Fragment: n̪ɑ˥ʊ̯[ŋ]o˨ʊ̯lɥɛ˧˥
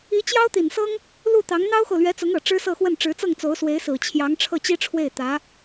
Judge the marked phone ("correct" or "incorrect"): incorrect